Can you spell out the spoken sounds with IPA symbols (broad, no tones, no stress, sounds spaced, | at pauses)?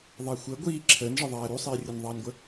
ðˤ æ xʷ əː ɡʷ iː ǁʰ əː n ʐ ə ðˤ æː ɾ u sˤ iː rʲ ə n ðˤ ɑː n ɡʷ ə